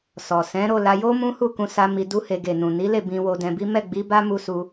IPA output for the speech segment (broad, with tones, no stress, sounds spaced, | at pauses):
s ɔ˨ s ɛ̃˨˦ ɾ o˦˨ l a˧ j o˦ m ũ˦ h u˦˨ k ũ˧ s a˧ m i˧ d u˦ h e˧ ɡ e˨ n ũ˨ n i˨˦ l e˦˨ b ĩ˧ w o˧ d ɛ̃˧ b i˦ m ɛ˦˨ ɡ͡b i˨˦ b a˦ m u˦ s u˦